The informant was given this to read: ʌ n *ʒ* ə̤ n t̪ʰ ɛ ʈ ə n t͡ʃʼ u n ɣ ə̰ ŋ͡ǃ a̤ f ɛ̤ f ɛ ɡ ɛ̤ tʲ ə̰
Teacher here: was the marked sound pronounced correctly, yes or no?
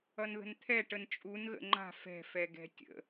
no